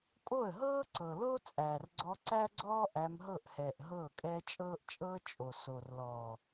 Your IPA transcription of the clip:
kʼo˦˨ə̯ɦɤː˦ǀɤ˨lo˦ t͡sʼæː˨rɡ͡ǀɔ˧ǀæ˦ɡ͡ǀɔː˦ ʔæ˧mɦɤ˦˨ʔhɛː˨ʔ ɦɤː˦˨kʼɛː˦ t͡ʃʼɤː˦ʔt͡ʃʼɤː˦ t͡ʃʼo˨ so˨rlɔː˨

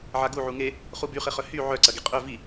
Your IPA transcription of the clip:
ʕaɡu ʕuŋe | χubyχɪχœ hy ʕœǀɐ ɡiqʼœ vi

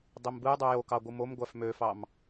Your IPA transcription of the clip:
dˤimbɯjdˤu jokɑ ɡʷɯmomɡʷæf møfɑm

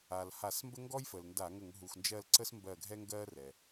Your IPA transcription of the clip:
a˩lha˧˩˧smbə˥ ŋɡɔ˥jfə˩lnda˧˩˧ ŋə˧˩˧ŋɦu˩xnd͡ʒɜ˦˨l ǀə˥smbɜ˦˨ɡʱɛ˥ŋɡɜ˥ rɛ˩

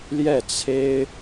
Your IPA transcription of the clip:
ljɛ˥˩t͡sʰe˥ɪ̯

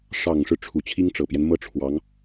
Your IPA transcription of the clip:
ʂɑ˨˩ŋʂɻ̩˦ ʈ͡ʂʰu˨˩t͡ɕʰi˥ŋʈ͡ʂɤ˨˩pjɛ˦n mɤ˥˩ʈ͡ʂʰwɑ˧˥ŋ

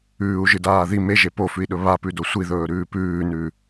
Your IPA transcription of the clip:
ʉːu̯ʒɨdaː ði meʒe pofʉi̯ɗɵ βapʉdo sʷiðɵːɾʉː pʉːnʉː

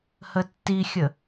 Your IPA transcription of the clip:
hətːixʲə

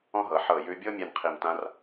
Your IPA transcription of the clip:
ɔ̃˥ɦɤ˩˧ ħɤ˧˩jʉ˧bʲɤ˥ mʲɛ˥˧nqʰi˧˩m tã˥r

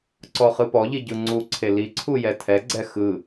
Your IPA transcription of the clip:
ǀɔχɯpɔʎi ɟɯŋ͡ǀuǀʰe liǀʰu jɛtʰɛɡ͡ǀɛ xɯ

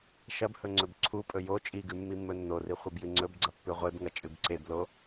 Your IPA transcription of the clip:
ʃɐbhɵ ŋ͡ǀɵbǀʰupʼɵ jo t͡ʃʼiɡʉ mːimːɵnːori χʷɨbjɨŋ͡ǀɵbɡ͡ǀɐ pːʉʁʷebŋɐ t͡ʃʼɨbǀeblo

